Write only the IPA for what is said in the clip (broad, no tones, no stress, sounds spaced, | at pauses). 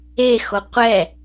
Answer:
e x o qʷ ɛ